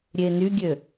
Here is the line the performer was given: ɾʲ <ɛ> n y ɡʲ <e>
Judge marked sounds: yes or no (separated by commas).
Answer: no, no